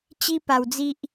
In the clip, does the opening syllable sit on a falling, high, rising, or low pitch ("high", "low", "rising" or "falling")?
high